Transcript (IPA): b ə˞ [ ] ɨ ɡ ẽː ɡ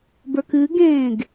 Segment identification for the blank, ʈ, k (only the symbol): k